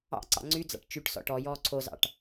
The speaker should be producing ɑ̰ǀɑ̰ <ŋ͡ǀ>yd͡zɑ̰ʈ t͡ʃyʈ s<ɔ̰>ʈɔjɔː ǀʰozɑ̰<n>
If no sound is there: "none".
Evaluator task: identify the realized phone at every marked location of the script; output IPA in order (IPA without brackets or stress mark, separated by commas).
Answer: ŋ͡ǀ, ɔ̰, ʈ